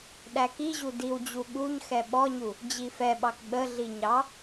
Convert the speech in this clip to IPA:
ɗ æ k i ʑ u d i w d͡ʑ u ɠ u ɲ x ɛ ɓ ɔ ɲ u | d͡ʑ i f ɛ ɓ ɑ k ɓ ə ɮ i ɲ ɑ

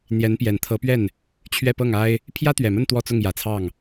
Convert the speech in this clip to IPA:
n̪ j ɛ˧˥ n p j ɛ˨˩ n t̪ʰ ɤ˧˥ p ɥ ɛ˥˩ n | t͡ɕʰ ɥ ɛ˥˧ p ɤ˥˩ ŋ a˥ ɪ̯ | pʰ j ä˥ t̪ ɥ ɛ˨˩ m ə˥˧ n t̪ w ɔ˥˧ t͡s ʊ˥˩ ŋ j ä˨˩ t͡sʰ ɑ˥˩ ŋ

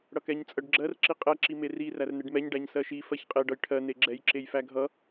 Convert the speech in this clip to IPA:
ɽ ʌ k ɛ ɲ t͡sʼ ɜ ɖ ɡ͡ǁ ɜ r ǁ i qʼ ɛ ǁ i m e r i r æ r n e ɖ m ɛ ɲ ɖ æ ɲ s ɜ ʃ i f ɜ ç qʼ e ɖ ʌ j ʈʰ ɜ n e ɡ͡ǁ ɛ j ǁ e j f æ ɡʱ ʌ

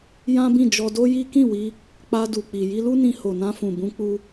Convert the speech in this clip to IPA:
j ã˦ b ĩ˦˨ d͡ʒ ɔ˧ d o˦ j i˦ k ĩ˦˨ w i˧ | k͡p a˧ d u˨ k͡p i˨ j i˧ l u˦ n ĩ˧ h o˨ n ã˧ f ũ˨ b ũ˧ k͡p u˧

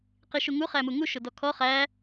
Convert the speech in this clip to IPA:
q i ʃ u ŋ u χ æ m u ŋ u ʃ ʊ d ɔ kʰ ɔ χ æ

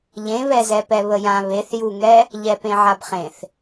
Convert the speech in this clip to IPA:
ʎ ẽ β ɛ z ɛ p ɛ β ə j ã β e θ j u ŋ ɛ | ʎ ɛ p ẽ ʕ a b χ ẽ θ

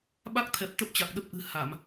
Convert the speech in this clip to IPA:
ɓ a˦˥ k̚ t̪ʰ ɛ˨˩ p̚ t̪ ə˦˥ p̚ t͡ɕ a˨˩ k̚ ɗ ə˦˥ p̚ ʔ ɨ̤˨˩ h a˧˩˨ m

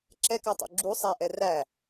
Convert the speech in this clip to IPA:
ǁ ɛ k ɑ tˤ ṵ ɡ͡ǁ u sˤ æ ʔ ɛ r æ

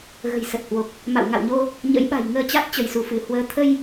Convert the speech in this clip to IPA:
ɣ ə̤˨˩ j s ə˨˩ t̚ h w o˨˩ k̚ | m a̰˧˨ w ŋ a̰˧˨ w ɲ o˧ | ɲ ə̰˧˥ j ɓ a̤˨˩ j ŋ əː˧ t͡ɕ a˦˥ t̚ t͡ɕ ə˧˩ j s u˧˩ f ɨ˧˩ h w əː˨˦ t̪ʰ ə˧ j

